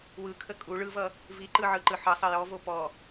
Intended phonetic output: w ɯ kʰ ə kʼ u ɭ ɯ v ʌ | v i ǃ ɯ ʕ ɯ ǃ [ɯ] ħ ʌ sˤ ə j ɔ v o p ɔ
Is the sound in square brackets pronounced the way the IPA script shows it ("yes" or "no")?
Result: yes